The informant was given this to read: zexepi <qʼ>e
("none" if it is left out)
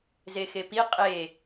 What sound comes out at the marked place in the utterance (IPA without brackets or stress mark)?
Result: qʼ